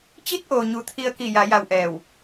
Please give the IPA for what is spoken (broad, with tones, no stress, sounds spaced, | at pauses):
t͡ɕ i˧˥ t̚ ʔ o˩ ɲ u˩ t̪ʰ i˧ ə̯ k i˧˩ j a˩˧ j a˧ w ʔ ɛː˧˩ w